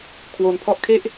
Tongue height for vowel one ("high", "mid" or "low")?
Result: mid